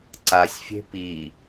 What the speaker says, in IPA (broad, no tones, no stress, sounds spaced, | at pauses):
ǀ a sʲ fʲ e̤ p i